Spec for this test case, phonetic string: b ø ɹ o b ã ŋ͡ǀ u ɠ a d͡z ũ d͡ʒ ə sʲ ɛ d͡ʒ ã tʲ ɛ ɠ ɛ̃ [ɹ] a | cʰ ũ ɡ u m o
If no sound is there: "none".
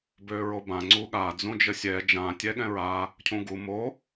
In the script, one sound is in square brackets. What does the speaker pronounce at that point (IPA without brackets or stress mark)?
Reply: ɹ